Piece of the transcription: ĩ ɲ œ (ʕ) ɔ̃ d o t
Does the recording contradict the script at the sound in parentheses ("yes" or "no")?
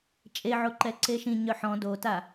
yes